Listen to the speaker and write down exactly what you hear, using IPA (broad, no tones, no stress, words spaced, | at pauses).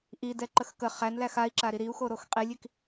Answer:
ʔidɛ ǃəxkə χænlæx ai̯ǁaɾi ɾiu̯xo ɾoxqʼilʲik